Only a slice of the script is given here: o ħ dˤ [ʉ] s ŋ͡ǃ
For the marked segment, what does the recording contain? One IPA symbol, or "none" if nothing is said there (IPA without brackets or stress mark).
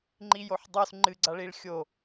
u